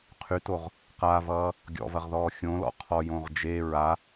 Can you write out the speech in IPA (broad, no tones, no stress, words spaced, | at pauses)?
qʰytoʁ | qavʌː | ɡʲɔ̰vɐʁðɔː xʲõlɔ̰ qʰɔjõʁ d͡ʒe ɹa